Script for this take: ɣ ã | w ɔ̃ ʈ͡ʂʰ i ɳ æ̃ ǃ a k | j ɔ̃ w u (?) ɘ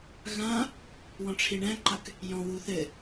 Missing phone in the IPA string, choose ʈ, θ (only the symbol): θ